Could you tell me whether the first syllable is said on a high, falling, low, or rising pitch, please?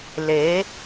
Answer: rising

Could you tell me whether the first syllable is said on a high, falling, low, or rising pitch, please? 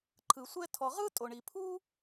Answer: low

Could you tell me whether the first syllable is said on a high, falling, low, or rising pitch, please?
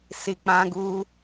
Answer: low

